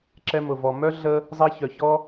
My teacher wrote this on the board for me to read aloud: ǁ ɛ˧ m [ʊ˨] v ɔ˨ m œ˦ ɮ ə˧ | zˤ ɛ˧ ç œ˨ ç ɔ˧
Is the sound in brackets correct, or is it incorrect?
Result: correct